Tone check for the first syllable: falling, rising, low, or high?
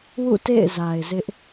falling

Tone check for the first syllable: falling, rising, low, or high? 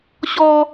high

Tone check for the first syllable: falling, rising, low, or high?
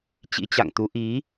rising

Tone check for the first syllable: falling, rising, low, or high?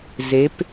rising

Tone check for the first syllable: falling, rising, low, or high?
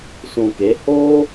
low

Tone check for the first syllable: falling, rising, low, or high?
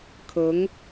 rising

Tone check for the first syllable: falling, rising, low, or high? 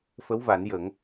rising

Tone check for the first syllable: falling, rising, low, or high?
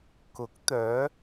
rising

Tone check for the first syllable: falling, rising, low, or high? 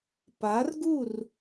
rising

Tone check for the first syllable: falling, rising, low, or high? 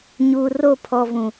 low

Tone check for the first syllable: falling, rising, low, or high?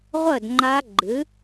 falling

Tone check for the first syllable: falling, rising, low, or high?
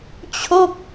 falling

